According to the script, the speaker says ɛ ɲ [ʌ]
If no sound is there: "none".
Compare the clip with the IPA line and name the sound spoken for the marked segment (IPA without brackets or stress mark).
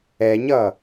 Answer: ʌ